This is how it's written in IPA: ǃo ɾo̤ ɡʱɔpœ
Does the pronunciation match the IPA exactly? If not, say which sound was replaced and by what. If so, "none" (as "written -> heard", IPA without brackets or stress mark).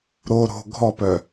ǃ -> ɾ